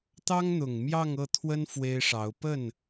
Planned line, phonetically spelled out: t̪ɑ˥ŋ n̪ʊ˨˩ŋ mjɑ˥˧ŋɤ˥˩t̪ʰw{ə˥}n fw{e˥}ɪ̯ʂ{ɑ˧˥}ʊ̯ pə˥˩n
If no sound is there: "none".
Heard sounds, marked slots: ə˥, e˥, ɑ˧˥

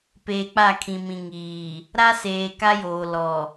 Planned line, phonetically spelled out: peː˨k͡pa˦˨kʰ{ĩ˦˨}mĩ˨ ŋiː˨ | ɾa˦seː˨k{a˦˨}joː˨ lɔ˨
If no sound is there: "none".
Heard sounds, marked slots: ĩ˨, a˦

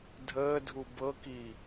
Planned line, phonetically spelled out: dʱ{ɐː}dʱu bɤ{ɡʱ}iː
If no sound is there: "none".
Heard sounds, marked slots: əː, k

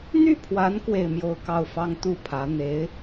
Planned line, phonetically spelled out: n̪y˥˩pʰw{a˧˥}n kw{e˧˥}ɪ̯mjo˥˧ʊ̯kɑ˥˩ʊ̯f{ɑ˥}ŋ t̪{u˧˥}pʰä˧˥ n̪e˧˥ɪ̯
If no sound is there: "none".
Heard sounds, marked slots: a˧˥, e˥˧, ɑ˥, u˥˩

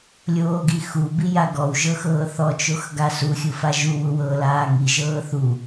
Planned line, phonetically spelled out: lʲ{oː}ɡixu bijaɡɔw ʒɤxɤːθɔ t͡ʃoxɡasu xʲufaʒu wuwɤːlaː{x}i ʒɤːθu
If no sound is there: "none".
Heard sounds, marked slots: oː, ŋ

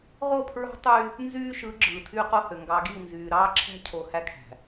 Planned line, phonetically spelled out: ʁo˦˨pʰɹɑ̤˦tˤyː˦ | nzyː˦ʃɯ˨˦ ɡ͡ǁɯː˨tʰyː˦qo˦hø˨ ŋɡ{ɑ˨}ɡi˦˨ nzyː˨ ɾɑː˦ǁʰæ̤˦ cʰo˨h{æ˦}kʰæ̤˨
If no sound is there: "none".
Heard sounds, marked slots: ɑ˨, æ˦

